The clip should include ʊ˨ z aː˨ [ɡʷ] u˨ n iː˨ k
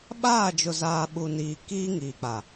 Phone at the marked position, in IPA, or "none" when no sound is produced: ɓ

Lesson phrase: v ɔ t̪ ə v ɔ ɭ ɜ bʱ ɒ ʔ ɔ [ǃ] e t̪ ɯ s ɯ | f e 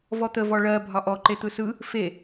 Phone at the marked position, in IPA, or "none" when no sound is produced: ǃ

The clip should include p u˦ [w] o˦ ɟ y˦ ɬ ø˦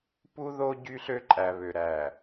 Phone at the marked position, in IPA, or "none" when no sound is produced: ð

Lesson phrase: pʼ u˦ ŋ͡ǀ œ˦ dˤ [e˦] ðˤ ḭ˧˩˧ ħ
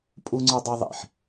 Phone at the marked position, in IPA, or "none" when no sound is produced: e˦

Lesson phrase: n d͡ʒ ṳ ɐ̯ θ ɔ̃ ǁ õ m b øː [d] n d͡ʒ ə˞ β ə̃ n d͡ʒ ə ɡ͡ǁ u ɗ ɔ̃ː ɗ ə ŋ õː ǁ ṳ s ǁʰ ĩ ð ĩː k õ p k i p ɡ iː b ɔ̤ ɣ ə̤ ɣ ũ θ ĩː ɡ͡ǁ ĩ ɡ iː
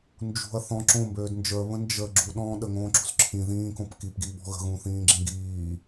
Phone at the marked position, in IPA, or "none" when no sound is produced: d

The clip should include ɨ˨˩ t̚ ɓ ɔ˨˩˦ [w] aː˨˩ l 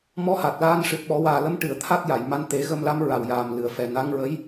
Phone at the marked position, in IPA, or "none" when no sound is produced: w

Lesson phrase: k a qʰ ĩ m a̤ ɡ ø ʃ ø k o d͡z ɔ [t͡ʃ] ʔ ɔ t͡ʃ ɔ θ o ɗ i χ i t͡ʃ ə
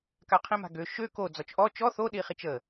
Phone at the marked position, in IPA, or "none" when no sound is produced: t͡ʃ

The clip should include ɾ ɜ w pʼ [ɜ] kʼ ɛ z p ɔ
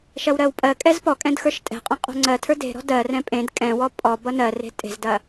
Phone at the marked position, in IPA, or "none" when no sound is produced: ɜ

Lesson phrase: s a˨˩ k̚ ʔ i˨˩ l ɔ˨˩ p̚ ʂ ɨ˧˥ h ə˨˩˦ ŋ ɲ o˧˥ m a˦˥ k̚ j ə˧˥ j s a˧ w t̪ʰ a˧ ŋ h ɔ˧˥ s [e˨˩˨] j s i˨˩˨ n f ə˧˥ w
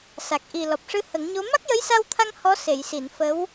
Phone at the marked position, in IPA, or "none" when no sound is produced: e˨˩˨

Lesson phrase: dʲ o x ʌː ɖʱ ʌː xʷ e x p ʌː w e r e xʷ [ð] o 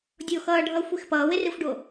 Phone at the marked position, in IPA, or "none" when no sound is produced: ɖ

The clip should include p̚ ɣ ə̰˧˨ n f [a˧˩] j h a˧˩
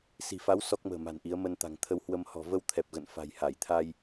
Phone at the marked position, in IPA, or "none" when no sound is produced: a̤˨˩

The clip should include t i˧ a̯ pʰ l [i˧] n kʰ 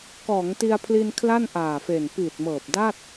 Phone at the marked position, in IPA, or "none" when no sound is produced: i˧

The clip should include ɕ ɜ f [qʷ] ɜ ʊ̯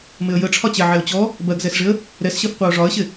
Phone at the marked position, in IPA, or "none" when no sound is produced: qʷ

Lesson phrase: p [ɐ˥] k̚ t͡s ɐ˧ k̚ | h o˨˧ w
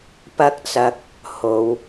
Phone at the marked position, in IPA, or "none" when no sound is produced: ɐ˥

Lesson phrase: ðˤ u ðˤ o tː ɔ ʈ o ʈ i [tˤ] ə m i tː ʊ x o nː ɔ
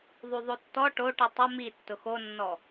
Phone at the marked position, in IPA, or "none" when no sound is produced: tˤ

